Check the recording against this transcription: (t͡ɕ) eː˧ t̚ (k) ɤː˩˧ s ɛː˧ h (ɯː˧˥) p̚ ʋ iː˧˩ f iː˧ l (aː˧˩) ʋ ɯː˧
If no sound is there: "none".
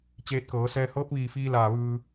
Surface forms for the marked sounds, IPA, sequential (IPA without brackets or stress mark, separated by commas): t͡ɕ, k, ɤː˧˥, aː˧˩